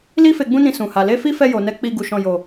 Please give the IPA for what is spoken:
l i˦ f e˧ ɡ͡b ũ˦ n ĩ˧ s ũ˨ h a˨ l e˧ f i˦ f ɛ˧ j o˨ n ɛ˨˦ k͡p i˧ ɡ u˧ ʃ ɔ̃˧ j o˨

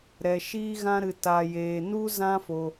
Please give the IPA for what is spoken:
ɾ ɛ˧ ʃ iː˦ ɣ ã˦ ɾ ɨ˧ t a˧ j eː˧ n u˦ z ã˦ f o˧

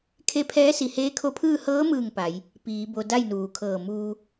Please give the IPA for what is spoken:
kʰ e˧˥ pʰ ɛː˧˥ s i˧˩ h eː˧˥ kʰ o˧˥ pʰ ɯː˥˨ h ɤː˧˥ m ɯː˧˩ ŋ p a˩˧ j | p iː˩˧ b o˧ d a˥˨ j n uː˩˧ kʰ ɤː˧˩ m uː˧

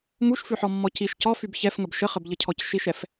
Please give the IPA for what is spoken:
ŋ u ʃ f ʉ ħ ɔ mː ɔ c i ʃ c ɔ f y b ç ɛ f ŋ ə b ʃ ə χ ə b ʎ ə cʰ ɔ c ʃ i ʃ ɛ f

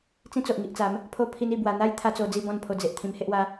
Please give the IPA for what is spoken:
t͡s ĩ˦ t͡s o˨ ʔ ŋ i˨ ʔ t͡s a˨˦ m | pʰ o˧ pʰ i˧ n i˥˧ b w a˧ n̪ a˦ j t̪ʰ a˦ t͡s o˧ d͡z i˥˧ b ɔ̃˥˧ n pʰ o˧ d͡z e˨ ʔ t̪ʰ ĩ˧ m h e˦ ʔ w a˦

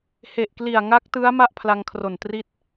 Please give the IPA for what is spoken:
h e˨˩ ʔ k l i˨˩ a̯ ŋ a˦˥ k̚ t ɯ˦˥ a̯ m a˥˩ ʔ pʰ l a˧ ŋ kʰ r o˨˩ n t r i˥˩ t̚

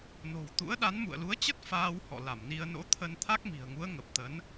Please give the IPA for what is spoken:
n o̤˨˩ w t̪ ṵ˧˥ ə̯ ɗ a˨˦ n m ṵ˧˨ ə̯ l u˨˦ ə̯ t͡ɕ ə˦˥ t̚ f aː˧ w h ɔ̰˧˨ l a˧˩ m n i˧ ə̯ n o̰˧˥ t̪ʰ ə˧ n t̪ʰ a˦˥ k̚ m i̤˨˩ ə̯ ŋ u˨˦ ə̯ ŋ ə˨˩ p̚ t̪ ə˨˦ n

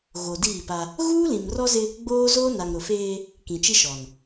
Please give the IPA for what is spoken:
ɣ o˨ d iː˦˨ p a˦ | ɣ uː˦ l ĩ˨ m r ɔ˦ z ɪ˦ | ɡ͡b oː˦ z oː˦ n a˨ ŋ ɾ ʊ˨ f eː˦ | k ĩ˨ t͡ʃ i˦ ʃ ɔ˨ n

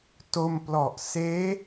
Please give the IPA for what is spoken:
t o˧ m p l ɔ˨˩ ʔ s eː˦˥

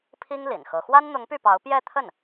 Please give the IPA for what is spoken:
pʰ i˥ ŋ l ḭ˨˩ n x ɤ˧˥ x w a˥ n n̪ ʊ˧˥ ŋ p y˥˩ p ɑ˧˥ ʊ̯ p j ɛ˥˧ t̪ʰ ə˥˩ n

